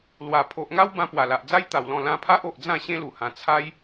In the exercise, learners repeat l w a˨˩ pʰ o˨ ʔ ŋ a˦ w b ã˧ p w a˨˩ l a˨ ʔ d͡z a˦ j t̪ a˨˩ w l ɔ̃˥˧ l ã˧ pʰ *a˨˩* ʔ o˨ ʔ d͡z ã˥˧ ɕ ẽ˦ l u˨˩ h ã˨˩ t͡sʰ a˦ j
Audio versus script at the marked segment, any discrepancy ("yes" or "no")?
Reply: yes